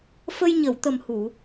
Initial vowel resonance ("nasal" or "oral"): oral